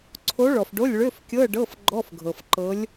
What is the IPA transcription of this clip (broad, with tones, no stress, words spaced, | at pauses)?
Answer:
ǀʰo˧˥ɭɔ˨fɖo˧˥˧lʲ ɭø˧˥˧fkʲɤ˧˥˧ ɖɤ˧˥˧fɡ͡ǃɔ˧˥˧fɡʱɤ˨fǃɤ˧˥lʲ